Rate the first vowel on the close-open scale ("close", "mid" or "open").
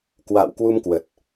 open